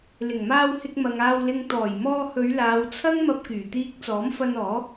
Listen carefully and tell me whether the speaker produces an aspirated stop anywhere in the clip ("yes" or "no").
yes